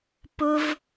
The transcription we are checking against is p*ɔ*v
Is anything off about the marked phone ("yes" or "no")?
yes